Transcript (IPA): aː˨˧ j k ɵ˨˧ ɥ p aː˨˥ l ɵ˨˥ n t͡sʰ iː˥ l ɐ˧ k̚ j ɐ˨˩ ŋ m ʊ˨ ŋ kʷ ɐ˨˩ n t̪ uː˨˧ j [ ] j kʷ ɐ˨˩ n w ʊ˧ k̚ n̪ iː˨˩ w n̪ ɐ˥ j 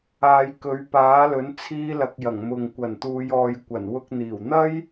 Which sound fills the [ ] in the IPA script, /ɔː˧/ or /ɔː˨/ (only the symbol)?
ɔː˨